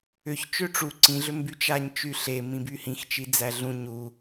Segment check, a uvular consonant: absent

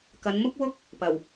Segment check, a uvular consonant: absent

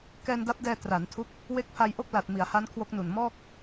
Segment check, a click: absent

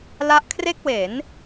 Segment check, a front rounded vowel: absent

